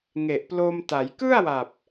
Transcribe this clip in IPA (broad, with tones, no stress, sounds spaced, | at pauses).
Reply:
ŋ e˨˩ ʔ p l o˧ m t a˩˦ j k ɯ˥˩ a̯ w a˨˩ p̚